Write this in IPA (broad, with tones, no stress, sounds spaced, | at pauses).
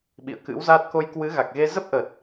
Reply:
ɓ ḭ˧˨ ə̯ k ɨ̰˧˥ w z aː˦˥ t̚ k o˧ j k w ɨ˨˦ ɣ a˨˩ k̚ ɣ e˧ z ə˦˥ p̚ ʔ ə˨˩ t̚